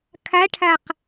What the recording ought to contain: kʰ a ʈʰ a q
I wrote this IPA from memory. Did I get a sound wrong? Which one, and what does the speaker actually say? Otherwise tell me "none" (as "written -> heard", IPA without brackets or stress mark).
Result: none